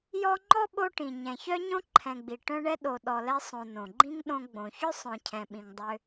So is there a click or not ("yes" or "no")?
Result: yes